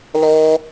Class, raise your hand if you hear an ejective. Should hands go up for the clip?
no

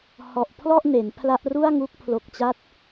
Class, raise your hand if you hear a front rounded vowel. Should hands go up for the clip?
no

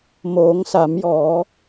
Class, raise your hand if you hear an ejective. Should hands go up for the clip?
no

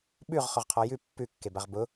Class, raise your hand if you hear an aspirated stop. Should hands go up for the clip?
yes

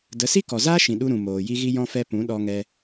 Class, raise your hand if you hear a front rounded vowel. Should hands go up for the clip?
no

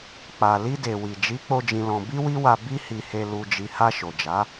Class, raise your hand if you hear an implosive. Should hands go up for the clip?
no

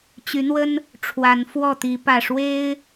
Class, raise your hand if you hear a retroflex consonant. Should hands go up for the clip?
yes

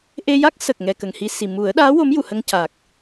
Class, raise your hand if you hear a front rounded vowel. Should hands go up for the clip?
no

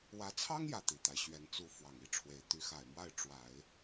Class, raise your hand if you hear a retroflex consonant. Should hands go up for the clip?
yes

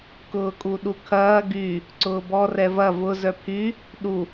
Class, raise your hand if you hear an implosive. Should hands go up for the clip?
yes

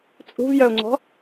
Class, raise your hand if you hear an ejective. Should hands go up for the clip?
yes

